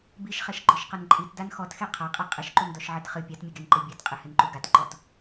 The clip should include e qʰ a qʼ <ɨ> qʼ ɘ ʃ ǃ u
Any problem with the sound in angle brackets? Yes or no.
yes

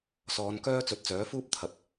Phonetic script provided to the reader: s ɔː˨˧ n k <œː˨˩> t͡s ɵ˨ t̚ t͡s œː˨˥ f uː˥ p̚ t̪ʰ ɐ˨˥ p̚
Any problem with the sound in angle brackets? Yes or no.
yes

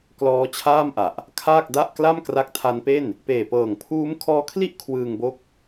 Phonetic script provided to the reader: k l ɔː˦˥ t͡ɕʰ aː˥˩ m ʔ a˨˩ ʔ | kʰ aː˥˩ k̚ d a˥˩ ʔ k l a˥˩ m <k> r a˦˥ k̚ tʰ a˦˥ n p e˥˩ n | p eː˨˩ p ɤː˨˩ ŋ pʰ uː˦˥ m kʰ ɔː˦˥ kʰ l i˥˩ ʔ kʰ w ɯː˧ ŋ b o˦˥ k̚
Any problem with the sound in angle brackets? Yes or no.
no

